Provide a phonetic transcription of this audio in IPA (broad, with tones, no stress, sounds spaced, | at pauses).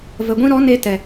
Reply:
v ə˨ ɡʷ ĩ˧ ɾ ɔ˨˦ n e˦ t ɛ˨